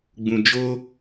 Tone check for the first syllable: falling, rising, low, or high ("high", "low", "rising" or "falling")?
low